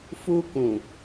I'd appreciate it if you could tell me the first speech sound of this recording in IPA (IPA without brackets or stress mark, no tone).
f